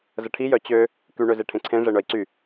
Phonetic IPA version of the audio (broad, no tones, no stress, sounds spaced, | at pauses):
z ə ʈʰ i j œ t͡ɕ ø | k y ɳ ø z e ʈʰ ẽ ǀʰ ẽ ʐ e ɳ œ i̯ ǀ y